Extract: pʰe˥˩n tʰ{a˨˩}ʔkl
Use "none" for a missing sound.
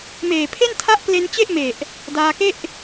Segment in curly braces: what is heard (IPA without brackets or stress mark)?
a˦˥